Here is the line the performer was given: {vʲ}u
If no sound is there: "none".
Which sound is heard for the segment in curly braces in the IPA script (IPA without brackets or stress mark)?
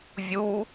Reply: vʲ